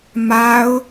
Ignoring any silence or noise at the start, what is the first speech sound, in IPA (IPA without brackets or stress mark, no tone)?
m